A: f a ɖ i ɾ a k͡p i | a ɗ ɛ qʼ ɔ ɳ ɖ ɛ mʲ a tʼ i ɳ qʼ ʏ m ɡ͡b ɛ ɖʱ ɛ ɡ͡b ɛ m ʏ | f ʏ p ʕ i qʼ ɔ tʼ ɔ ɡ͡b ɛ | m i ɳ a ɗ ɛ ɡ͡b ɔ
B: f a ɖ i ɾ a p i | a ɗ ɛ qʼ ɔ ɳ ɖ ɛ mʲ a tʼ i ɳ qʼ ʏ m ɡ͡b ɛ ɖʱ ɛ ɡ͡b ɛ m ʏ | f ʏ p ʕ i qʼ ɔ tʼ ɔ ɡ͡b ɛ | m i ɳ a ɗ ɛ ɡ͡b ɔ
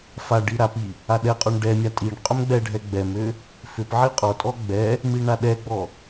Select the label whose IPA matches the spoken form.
B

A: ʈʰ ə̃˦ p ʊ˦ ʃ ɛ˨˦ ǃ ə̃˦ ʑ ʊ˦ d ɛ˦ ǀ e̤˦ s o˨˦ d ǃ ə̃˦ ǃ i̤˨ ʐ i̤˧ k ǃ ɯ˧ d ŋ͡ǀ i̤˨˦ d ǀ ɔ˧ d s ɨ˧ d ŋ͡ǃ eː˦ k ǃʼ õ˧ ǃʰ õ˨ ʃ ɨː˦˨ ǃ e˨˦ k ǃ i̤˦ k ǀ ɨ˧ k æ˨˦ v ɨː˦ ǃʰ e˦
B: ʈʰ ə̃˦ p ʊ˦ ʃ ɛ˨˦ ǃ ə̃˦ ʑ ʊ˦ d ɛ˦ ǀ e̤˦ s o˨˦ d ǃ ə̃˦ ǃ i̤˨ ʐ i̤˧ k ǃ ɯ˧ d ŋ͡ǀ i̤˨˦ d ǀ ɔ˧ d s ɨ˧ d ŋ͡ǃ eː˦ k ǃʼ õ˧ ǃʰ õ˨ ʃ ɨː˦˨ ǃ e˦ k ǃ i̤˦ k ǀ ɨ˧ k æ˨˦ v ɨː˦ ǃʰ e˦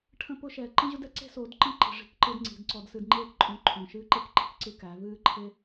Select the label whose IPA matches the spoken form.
B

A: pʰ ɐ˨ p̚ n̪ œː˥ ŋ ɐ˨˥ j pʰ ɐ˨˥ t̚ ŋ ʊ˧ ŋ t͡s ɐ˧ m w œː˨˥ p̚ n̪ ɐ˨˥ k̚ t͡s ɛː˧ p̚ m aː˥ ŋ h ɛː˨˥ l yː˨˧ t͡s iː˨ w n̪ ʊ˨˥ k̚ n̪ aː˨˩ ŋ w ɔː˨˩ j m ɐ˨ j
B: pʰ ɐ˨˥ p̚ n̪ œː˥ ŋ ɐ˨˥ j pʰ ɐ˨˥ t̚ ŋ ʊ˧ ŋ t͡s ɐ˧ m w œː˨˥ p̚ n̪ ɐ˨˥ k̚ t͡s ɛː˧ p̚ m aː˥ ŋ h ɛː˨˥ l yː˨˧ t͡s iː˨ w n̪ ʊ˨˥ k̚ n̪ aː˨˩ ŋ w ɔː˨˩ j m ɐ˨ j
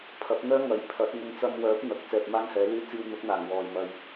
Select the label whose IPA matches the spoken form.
B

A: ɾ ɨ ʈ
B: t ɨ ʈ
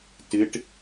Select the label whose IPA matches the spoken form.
B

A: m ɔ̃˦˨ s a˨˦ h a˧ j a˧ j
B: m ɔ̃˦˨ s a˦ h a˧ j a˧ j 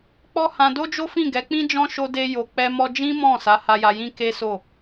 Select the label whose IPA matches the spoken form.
A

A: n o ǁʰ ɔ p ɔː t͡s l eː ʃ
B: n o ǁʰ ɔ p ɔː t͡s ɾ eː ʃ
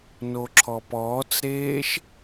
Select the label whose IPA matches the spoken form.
B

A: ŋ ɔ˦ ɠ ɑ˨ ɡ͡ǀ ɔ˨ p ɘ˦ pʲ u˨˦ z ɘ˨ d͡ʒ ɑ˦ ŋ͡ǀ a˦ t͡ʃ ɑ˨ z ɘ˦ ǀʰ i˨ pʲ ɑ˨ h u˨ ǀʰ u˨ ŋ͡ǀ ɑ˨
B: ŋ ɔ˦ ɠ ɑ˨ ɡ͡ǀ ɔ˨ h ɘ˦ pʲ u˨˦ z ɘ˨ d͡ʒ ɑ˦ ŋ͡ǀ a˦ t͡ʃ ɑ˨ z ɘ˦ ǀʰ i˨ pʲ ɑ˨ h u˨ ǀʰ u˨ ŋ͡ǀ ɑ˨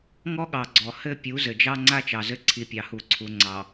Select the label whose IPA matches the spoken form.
B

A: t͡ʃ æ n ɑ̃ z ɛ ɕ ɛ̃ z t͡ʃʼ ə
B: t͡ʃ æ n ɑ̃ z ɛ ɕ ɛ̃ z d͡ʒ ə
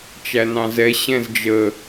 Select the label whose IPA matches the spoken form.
B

